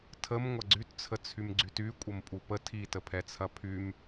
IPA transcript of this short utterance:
tʰ ə m ŋʷ ɐ ɡ͡ǀ y t t͡sʰ ə t͡sʰ y m ɡ͡ǀ y t y kʷʼ ə m pʼ u p ə tʰ i t ə pʰ ɛ t͡sʰ ɐ pʰ y m

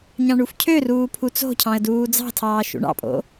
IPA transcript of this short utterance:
ɲ ɑ̃ ɳ u f cʰ ø r uː pʰ u t͡s o̤ cʰ ɑ̃ ə̯ d uː d͡z ɑ̤ tʰ ɑː ʃ ṵ ɳ ɑ̰ pʼ o̰

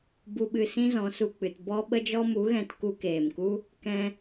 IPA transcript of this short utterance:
b u˨ ɓ ɨ˨ s ĩ˦ z ɔ̃˨˦ s u˨ k͡p ɨ˨ t b ɔ˧ ɓ ə˧ d͡ʒ ɔ˧ m u˨˦ ɣ ɛ̃˧ t k u˧ k eː˨ m k u˦ | k ɛ̃˧

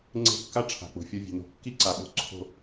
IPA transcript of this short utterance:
ŋ͡ǀ e̤˦˨ kː a˦ ʈ͡ʂʰ a̤˨ k͡p o̤˨ fʲ o˧ vʲ e̤˨ n o̤˧ kː i˦ ǀ a˨ ɓ o̤˧ ǀʰ o̤˧

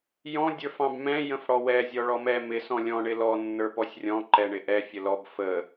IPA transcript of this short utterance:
j ɔ̃ dʲ ə˞ f ɑ̃ b m ɛ̃ j ə̃ f ɽ ɔ w ɛ zʲ ɔ ɭ ɔ m ɛ m ɪ s ɔ̃ lʲ ɔ̃ ɳ ɪ l ɔ nː ə˞ p ɔ sʲ rʲ ɔ̃ ǃ ɛ ɳ ɪ ʔ ɛ fʲ ə l ɔ b f ə

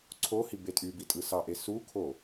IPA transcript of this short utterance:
ǀʰ o h i b e tʼ y b i tʼ ɯ s ɑ ʔ e s u kʰ o

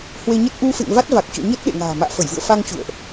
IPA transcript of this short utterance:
h w e˧ ɲ ə˦˥ t̚ ʔ u˧ f ḛ˧˨ ŋ v a˦˥ t̚ v a˨˩ k̚ t͡ɕ ɔ̰˧˨ ɲ ə˦˥ t̚ ɗ ḛ˧˨ ŋ a̤ː˨˩ m a̰ː˧˨ f ə˧˩ j v ɨ̰˧˨ ə̯ f a˧ ŋ t͡ɕ ṵ˧˨ ə̯ ʔ

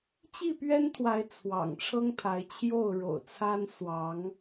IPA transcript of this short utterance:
t͡ɕ i˥˨ p ɥ ɛ˦ n t̪ʰ w a˨˦ ɪ̯ t͡sʰ w ɑ̰˨˩ ŋ ʈ͡ʂʰ ɤ˦ ŋ t̪ʰ a˨˦ ɪ̯ t͡ɕʰ j o˥˨ ʊ̯ ɻ o̰˨˩ ʊ̯ t͡sʰ a˦ n s w ɑ˨˦ ŋ

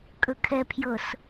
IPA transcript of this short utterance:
kʼ ɵ kʰ ɛ pʰ j ɤ s

